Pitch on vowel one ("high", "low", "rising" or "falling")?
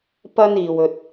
high